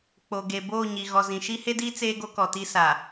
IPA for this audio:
k͡p o˨ ɡ e˨ b oː˦˨ ɲ i˨ ɣ ɔ˨ z ĩ˨ ʃ i˦ h e˦ d iː˦ t͡s eː˦ ɡ o˦ k ɔ˨ t i˦ s a˨

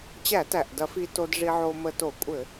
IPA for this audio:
t͡ɕ æ˧˩˧ t æ˩ ʔ d ɐ˧˩˧ f i˧ t o˧ d ʐ i˧ ʕ o˧ m ə˧ t o˧˩˧ kʷʼ ɘ˧˩˧

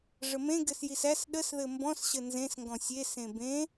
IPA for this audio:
ʐ ə m ẽ ɡ ɘ s j i s æ s ɗ ə s ð ɘ m b ɔ̃ s ɕ ə n z ẽ s ŋ ɡ ɔ̃ sʲ e s ẽ b ẽ

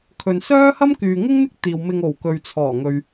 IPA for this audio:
kʰ ɵ˨ n s œː˥ h ɐ˥ m k yː˨ ŋ ɪ˥ ŋ n̪ ɪ˥ k̚ t̪ iː˨ w m ɪ˨ ŋ o˨˩ w k ɵ˨ ɥ t͡sʰ ɔː˨˩ ŋ ɵ˨ ɥ

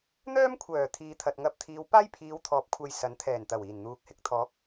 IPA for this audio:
n̪ œː˥ m kʷʰ œː˨˩ t̪ʰ iː˨ t̪ʰ ɐ˨ t̚ ŋ ɐ˧ p̚ t̪ʰ iː˨˧ w p aː˥ j pʰ iː˨˧ w t̪ʰ ɔː˨˥ p̚ kʷʰ ɐ˧ j s ɐ˨˥ n t̪ʰ ɛː˨˩ n t̪ ɐ˨˩ w iː˨˩ n n̪ uː˨˥ k̚ h ɪ˨ k̚ t̪ʰ ɔː˨˥ k̚

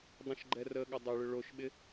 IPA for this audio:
dˤ ĩ ʃ ɡ͡ǃ ɛ r ə ɠ ə dˤ ɪ ɭ ʏ ɭ o ʃ ɓ ɪ

